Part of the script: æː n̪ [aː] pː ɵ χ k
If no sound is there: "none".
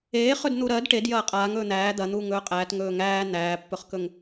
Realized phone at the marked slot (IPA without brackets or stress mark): æː